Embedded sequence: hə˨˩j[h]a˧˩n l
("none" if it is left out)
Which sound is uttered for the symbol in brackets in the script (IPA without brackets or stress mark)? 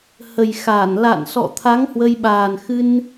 x